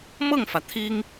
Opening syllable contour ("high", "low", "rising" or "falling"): falling